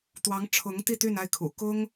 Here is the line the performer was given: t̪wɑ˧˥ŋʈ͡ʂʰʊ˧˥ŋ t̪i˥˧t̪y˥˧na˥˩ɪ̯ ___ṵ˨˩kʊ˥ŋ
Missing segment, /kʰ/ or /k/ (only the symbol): kʰ